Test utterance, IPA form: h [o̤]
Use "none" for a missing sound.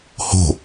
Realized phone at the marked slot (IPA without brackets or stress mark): o̤